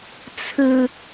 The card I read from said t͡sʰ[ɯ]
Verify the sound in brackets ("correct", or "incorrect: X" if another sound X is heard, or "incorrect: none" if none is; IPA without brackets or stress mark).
correct